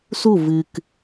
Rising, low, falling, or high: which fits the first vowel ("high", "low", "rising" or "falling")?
falling